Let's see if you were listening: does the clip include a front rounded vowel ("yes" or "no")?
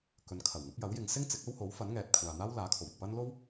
no